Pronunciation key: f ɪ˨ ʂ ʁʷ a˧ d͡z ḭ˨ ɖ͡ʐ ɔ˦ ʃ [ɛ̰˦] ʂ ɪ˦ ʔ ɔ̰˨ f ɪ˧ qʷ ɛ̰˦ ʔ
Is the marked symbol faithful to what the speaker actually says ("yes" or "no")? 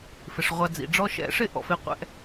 no